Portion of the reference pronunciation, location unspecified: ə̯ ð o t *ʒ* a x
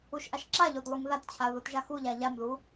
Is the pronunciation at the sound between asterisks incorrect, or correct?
correct